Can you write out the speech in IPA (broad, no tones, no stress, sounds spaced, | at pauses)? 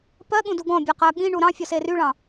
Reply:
p ɜ ɠ ũ d u ɡ ɔ̃ bʲ ɜ q ɜ ɠ ĩ ɳ u ɾ ɑ̃ fʲ ɔ s e r y ɭ ɑ̃